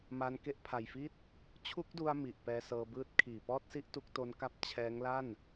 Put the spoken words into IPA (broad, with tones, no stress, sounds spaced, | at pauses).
m a˧ n k e˦˥ ʔ pʰ a˨˩ j f i˥˩ t̚ | t͡ɕʰ u˦˥ k̚ d u˧ a̯ m i˨˩ ʔ p ɛː˧ s ɤː˧ b ɯː˦˥ t̚ kʰ iː˨˩ p ɔː˥˩ t̚ s i˥˩ ʔ t u˦˥ k̚ t o˦˥ n k a˦˥ p̚ t͡ɕʰ ɛː˦˥ ŋ l a˥˩ n